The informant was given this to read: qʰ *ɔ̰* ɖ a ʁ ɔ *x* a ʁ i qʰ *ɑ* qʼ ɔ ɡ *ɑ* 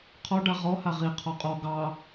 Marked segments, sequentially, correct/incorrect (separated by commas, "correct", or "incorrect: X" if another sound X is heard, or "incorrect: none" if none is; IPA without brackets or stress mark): incorrect: ɔ, incorrect: h, incorrect: ɔ, correct